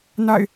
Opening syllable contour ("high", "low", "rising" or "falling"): falling